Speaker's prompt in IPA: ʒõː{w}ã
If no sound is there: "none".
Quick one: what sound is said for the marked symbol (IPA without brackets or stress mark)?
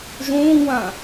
w